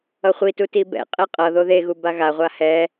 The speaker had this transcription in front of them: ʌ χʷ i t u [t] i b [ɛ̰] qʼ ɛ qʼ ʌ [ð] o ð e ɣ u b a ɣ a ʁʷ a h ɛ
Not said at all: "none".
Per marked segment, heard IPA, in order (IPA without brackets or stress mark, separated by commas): t, ɛ̰, ð